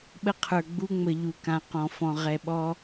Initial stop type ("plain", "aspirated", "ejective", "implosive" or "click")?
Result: implosive